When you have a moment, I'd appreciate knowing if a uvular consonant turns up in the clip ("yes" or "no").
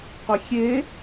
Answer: yes